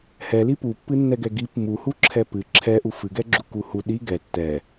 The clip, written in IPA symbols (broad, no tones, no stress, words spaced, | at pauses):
hɛli pupːɨnːɛɡɛ ɡip muhuǁʰɛ pɨ ǁʰɛ ʔufɨɡɛ ɡ͡ǁukuhu ɗi ɡɛ tːɛ